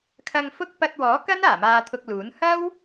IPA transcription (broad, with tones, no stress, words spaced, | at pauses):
kʰɐ˧ŋfʊ˥k̚ pɐ˧t̚wɔː˨˥kɐ˥n aː˨˩maː˧t̪ʰʊ˧k̚luː˨˥n hɐ˥w